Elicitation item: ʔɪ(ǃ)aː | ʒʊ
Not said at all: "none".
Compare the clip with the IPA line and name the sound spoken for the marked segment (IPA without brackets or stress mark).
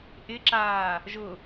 ǁ